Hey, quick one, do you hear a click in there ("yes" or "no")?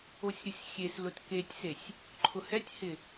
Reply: yes